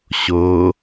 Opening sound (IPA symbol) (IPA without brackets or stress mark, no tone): ɕ